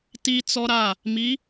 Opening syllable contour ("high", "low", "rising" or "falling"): high